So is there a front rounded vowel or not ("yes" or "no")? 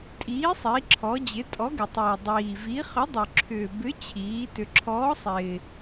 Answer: yes